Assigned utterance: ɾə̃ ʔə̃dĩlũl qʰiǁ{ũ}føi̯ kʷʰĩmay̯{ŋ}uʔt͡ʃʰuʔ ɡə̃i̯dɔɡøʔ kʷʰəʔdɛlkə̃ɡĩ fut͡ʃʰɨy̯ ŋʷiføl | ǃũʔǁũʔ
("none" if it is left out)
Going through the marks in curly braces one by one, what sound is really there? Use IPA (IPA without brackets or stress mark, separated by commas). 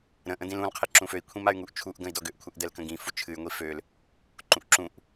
ũ, ŋ